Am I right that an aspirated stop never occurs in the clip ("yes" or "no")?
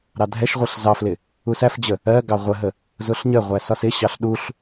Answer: yes